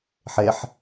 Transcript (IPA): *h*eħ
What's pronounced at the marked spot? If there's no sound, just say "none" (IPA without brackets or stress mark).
ħ